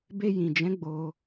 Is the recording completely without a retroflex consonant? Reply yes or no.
yes